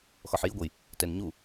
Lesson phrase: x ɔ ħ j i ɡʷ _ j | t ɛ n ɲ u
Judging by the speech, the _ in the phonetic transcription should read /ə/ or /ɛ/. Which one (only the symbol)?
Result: ə